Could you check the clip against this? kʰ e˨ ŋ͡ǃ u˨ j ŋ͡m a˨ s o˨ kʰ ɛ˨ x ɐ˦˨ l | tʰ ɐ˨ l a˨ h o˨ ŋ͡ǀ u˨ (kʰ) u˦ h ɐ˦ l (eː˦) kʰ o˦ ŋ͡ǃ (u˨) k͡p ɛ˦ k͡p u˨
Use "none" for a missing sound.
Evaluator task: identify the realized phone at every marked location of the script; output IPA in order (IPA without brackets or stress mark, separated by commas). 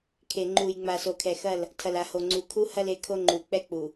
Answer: kʰ, e˦, u˨